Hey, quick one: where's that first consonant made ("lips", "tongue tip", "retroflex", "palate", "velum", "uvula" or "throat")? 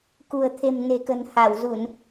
velum